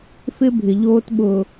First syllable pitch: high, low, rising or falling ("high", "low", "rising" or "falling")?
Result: high